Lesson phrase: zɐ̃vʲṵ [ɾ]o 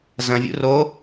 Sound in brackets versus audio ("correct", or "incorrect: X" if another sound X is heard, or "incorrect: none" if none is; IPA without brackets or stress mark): incorrect: r